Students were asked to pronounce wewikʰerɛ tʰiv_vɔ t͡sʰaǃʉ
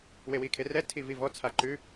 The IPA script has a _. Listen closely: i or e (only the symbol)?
i